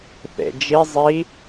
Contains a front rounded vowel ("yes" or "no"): no